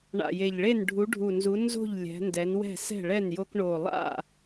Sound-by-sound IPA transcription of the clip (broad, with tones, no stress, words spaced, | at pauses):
ɳa̰˨˩je˨˩ʎɭe˥˨n ɖʱu˨˦ɖʱu˨˩nzu˨˦ nzo̤˥˨ʎ lʲɛ̤˨˦ ndɛ˨˦nwɛ̤˥˨ sɛ̤˥˨ɭɛ˥˨njo˦k ɳo˨˩lˠa̰˥˨